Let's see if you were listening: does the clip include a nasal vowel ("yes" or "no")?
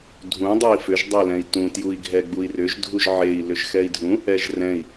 yes